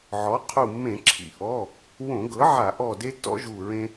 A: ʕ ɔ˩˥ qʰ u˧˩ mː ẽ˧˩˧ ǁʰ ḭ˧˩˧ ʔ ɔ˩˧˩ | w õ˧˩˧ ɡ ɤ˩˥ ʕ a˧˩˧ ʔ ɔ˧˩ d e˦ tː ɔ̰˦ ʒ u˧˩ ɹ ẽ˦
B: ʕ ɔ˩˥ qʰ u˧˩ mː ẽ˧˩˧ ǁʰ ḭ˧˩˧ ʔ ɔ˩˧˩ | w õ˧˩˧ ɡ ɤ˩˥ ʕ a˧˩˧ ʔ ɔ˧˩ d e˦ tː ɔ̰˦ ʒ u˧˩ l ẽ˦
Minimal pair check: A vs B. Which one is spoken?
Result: A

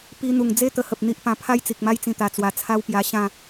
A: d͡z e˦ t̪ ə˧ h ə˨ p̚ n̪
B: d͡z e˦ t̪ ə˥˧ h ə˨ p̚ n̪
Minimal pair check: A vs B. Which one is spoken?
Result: A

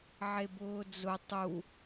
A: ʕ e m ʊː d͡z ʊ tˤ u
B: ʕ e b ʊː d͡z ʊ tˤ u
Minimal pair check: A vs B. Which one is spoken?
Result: B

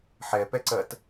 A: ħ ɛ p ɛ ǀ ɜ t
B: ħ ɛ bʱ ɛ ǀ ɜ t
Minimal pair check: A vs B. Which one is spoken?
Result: A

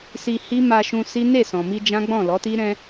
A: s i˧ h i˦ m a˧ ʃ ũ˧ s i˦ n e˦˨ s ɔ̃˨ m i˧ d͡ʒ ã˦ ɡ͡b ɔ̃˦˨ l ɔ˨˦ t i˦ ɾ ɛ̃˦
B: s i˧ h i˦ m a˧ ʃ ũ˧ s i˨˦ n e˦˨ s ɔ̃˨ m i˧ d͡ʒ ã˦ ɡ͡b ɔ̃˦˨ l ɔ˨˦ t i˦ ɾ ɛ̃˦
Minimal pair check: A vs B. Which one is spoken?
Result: A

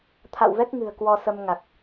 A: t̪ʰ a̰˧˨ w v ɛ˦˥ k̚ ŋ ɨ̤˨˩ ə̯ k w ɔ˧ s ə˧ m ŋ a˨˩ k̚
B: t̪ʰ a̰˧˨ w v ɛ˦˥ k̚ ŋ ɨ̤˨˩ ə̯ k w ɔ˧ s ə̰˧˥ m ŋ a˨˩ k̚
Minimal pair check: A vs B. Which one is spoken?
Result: A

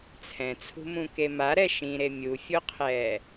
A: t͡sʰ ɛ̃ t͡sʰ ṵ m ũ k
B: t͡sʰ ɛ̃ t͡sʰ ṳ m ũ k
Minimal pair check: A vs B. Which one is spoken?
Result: B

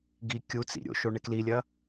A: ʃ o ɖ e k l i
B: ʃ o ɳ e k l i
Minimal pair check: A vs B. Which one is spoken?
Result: B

